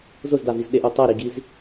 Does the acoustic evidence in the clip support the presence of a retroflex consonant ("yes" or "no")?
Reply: no